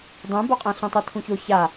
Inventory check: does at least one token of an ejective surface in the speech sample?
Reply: yes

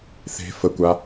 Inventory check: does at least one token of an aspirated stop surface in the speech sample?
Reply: no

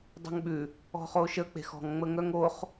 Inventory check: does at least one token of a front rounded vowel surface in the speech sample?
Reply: yes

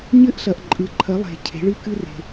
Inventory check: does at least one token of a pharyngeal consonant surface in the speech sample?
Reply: no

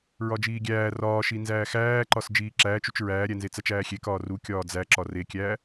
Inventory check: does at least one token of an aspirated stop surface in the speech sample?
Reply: no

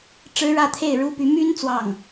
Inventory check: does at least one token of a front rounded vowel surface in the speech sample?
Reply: yes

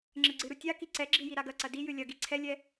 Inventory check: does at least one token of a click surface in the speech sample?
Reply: yes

